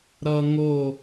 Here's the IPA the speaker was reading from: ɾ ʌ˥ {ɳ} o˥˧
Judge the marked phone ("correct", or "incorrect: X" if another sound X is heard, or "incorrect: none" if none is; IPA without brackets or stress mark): incorrect: ŋ